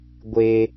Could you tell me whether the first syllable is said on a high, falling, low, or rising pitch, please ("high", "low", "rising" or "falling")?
high